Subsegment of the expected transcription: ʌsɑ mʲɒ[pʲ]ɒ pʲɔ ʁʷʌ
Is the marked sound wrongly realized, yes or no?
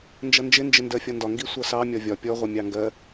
yes